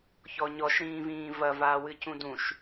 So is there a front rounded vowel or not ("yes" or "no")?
no